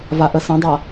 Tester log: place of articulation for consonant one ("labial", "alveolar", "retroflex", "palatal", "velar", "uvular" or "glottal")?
labial